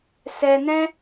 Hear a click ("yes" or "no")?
no